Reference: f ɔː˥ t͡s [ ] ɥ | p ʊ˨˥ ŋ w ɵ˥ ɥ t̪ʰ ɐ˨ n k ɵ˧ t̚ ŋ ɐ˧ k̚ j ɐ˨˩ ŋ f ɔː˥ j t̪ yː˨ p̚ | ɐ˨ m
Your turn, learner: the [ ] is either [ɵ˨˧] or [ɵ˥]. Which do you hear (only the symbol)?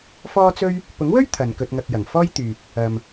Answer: ɵ˥